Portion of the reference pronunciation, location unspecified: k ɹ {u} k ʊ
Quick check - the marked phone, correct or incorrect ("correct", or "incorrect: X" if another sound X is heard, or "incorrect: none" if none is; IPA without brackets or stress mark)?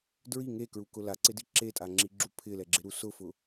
correct